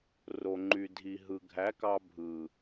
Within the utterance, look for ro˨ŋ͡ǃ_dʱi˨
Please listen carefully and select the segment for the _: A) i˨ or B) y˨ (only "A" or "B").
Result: B